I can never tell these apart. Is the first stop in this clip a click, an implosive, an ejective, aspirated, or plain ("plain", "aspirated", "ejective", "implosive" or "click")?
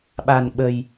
implosive